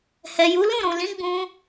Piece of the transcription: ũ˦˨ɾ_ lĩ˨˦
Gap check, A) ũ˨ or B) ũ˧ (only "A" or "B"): A